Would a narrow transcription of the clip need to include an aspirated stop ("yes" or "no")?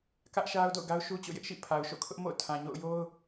yes